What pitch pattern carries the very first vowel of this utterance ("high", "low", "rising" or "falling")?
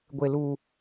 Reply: low